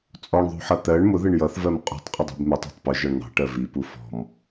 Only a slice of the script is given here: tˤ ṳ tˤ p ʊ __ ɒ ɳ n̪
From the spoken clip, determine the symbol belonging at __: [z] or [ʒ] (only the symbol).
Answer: ʒ